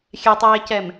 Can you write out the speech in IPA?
xʲɛtˤeːcɛm

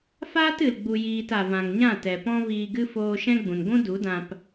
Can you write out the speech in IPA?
faː˦tɨ˨l ɡ͡bu˨jiː˨t a˨vã˨ŋɲã˦˨tɛ˨ pɔ̃˦viː˧ɡɨ˦ foː˧ ʃɛ̃˦ɡ͡bũ˨n ɡʷũ˦du˨˦dã˧p

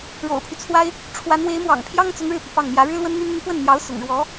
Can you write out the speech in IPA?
ɻo̰˨˩ʊ̯pʰy˦t͡sʰwa˥ɪ̯ | ʈ͡ʂʰwa˧˥n we˧˥ɪ̯mwɑ̰˨˩ŋ pʰjɑ˥ŋt͡sʊ˧˥ŋ ɻɻ̩˥˩pi˩pɑ˥˩ŋ mjä˧˥ ɻɻ̩˥lwə˥nn̪y˥n n̪y˧˥pwə˥˩nn̪jɑ˧˥ʊ̯ sʊ̰˨˩ŋɻwɔ˧˥

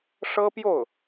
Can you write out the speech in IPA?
ʂɤ˥pjo˥˩ʊ̯

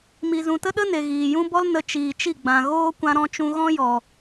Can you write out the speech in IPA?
mi˨zũ˨tə˦ɗə˦ ne˨ɣiː˨jũ˦ bɔ˦lnə˧ t͡ʃiː˨t͡ʃi˦˨ɡ͡bã˨ɣoː˦ kʷã˧ɾɔ̃˧t͡ʃũ˧ɣɔ̃˦ jɔ˨

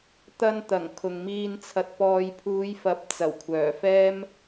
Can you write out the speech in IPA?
t̪ɐ˧nt̪ɐ˨˩ŋ kʰʊ˨ŋmiː˧n t͡sʰɐ˨t̚pɔː˨jpʰuː˨˧jfɐ˨˥p̚ t͡sɐ˨˩wkʷʰœː˨˩fɛː˥m

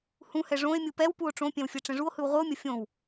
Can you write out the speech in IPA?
hũhɛ ʐõe̯mʲɯ pɛwpuo̯ ʈ͡ʂõpʲɛ̃w fʲɛʈ͡ʂɛ̃ʐuo̯hɯw ʁʷɯo̯mʲʌ fʲõw

